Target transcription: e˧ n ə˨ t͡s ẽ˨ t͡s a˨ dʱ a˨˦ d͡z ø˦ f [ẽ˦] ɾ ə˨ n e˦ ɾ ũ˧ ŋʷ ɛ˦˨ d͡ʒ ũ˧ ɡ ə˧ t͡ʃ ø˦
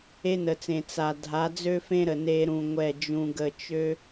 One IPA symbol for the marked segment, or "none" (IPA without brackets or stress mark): ẽ˦